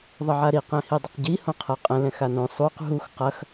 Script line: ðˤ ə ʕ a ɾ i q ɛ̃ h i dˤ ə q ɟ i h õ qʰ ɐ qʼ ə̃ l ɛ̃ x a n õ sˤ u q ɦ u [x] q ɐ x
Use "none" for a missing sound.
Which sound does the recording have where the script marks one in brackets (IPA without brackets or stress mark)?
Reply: x